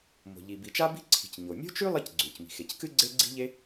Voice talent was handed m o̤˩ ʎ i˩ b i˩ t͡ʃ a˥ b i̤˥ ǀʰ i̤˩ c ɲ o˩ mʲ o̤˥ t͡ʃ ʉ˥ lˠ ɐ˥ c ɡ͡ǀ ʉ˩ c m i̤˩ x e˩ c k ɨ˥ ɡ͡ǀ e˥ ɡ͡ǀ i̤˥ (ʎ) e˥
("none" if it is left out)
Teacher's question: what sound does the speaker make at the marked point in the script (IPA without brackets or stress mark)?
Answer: ʎ